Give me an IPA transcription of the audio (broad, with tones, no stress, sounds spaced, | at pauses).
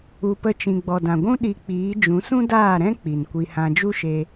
u˧ p ə˦ t͡ʃ ĩ˧ ɡ͡b ɔ˨ d ã˨ ɡʷ ũ˦ ɗ i˧ k͡p iː˨˦ d͡ʒ ũ˨˦ s ũ˦ d aː˦˨ ɾ ɛ̃˦ k͡p i˨ n kʷ i˧ h ã˧ d͡ʒ u˦ ʃ e˧